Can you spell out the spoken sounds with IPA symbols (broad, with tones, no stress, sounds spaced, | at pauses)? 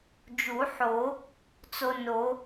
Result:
d͡ʒ u˨˩˦ ħ o˨˩˦ | t͡s o˧ n o˨˩˦